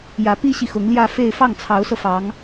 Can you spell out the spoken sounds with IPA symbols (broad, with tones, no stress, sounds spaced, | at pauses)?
j ä˧˥ p i˥ ɕ i˨ x ʊ˧˥ ŋ l j ä˥˧ f e˥˧ ɪ̯ f ɑ˥˩ ŋ t͡sʰ ɑ˧˥ ʊ̯ s ɤ˧ f ɑ˧˥ ŋ